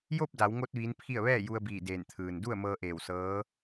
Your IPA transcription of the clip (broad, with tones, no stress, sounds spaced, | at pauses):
j o˥˨ p̚ d a˩˧ w ŋ o˧ t̚ ʋ iː˧˥ n pʰ i˥˨ ə̯ ʋ ɛː˥˨ j u˧ ə̯ b iː˧˩ d eː˧˩ n t̪ʰ ɯː˩ n d u˥˨ ə̯ m ɤː˧ ʔ eː˧˩ w s ɤː˧˥